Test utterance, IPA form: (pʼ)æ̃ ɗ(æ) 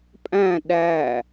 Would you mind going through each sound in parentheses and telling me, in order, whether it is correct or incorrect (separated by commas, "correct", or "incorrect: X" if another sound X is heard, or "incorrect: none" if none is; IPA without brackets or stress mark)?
correct, correct